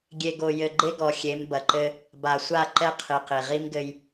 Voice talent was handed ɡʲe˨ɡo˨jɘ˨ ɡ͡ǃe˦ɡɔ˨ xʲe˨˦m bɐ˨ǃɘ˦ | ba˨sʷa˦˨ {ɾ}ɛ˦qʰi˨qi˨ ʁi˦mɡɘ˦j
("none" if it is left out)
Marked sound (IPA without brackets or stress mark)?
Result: ǃ